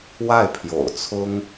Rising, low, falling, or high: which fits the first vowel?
falling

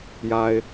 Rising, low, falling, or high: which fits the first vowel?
low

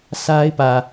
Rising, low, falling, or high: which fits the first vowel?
high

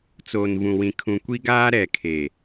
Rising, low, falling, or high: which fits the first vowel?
low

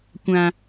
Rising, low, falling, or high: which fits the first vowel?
low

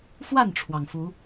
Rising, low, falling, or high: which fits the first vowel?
falling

